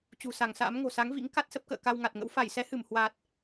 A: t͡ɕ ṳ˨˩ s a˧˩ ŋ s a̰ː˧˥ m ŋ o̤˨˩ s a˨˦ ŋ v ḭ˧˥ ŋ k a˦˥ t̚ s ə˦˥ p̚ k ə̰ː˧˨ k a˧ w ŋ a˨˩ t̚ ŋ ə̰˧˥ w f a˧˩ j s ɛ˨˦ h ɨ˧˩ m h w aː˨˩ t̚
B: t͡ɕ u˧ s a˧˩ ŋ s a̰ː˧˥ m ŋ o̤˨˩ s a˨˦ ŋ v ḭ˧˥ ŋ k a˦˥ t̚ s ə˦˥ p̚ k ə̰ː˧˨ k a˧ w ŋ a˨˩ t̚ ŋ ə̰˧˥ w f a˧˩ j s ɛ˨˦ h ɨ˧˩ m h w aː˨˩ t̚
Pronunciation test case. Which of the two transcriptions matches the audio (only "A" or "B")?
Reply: A